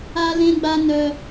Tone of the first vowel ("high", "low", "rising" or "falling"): high